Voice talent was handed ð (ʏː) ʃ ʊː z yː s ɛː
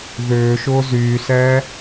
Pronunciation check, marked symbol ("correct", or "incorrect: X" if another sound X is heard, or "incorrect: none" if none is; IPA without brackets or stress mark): correct